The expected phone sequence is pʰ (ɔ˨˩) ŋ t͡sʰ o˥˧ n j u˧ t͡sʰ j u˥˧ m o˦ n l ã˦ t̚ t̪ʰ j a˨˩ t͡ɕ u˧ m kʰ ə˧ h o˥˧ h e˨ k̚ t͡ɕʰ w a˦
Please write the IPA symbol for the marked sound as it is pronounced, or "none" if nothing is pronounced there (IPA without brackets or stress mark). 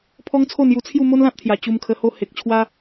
ɔ˦